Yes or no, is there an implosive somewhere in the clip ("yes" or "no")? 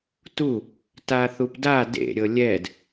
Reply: no